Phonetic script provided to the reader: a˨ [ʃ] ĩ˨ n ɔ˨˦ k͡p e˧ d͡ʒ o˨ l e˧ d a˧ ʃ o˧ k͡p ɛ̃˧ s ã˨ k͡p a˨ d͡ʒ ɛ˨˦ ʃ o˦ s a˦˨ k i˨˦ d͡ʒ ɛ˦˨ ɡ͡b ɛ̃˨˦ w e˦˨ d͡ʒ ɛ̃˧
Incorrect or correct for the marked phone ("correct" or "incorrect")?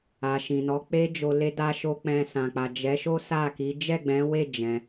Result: correct